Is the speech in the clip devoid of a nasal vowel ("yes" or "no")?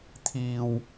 yes